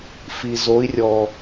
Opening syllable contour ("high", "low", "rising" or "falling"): low